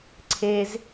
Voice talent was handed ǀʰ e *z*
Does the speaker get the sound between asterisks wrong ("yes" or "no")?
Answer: no